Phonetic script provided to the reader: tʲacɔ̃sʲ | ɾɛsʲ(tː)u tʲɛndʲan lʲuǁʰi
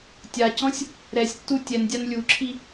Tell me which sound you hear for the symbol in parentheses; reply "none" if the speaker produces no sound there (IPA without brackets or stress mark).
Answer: tː